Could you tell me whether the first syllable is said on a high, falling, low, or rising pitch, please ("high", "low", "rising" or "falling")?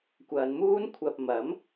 low